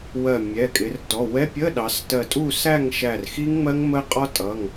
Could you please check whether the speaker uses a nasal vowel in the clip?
no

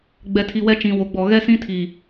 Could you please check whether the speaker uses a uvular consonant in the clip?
no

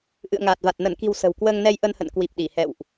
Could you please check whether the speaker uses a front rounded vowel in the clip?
no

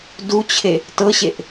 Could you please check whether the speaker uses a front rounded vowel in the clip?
no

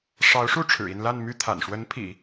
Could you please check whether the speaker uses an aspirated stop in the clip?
yes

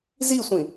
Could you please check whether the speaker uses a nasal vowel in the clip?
yes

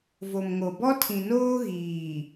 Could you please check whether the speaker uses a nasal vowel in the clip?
yes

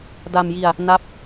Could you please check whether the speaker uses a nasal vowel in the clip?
no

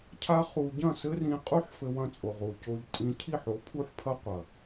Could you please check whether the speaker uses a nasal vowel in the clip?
yes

